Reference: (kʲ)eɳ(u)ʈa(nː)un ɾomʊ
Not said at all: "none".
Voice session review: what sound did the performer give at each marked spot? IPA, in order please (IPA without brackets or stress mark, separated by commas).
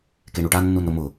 k, u, nː